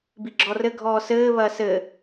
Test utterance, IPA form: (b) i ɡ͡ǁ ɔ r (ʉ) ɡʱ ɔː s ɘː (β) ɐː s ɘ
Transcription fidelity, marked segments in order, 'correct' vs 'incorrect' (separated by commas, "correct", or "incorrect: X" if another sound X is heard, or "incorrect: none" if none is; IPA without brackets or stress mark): correct, incorrect: ɘ, correct